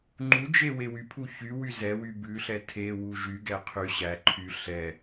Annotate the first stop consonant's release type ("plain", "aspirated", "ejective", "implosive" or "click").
click